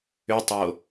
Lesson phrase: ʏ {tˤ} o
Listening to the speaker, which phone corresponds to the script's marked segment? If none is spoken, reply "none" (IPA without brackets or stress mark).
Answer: tˤ